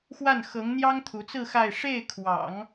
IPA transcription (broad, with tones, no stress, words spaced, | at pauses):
xwa˥˩n xɤ˧˥ŋn̪jɑ˥ŋt̪ʰu˧˥t͡sɹ̩˥˧ xa˥˧ɪ̯ ʂe˥˩ɪ̯kʰwɑ̰˨˩˦ŋ